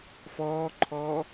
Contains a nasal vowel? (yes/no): no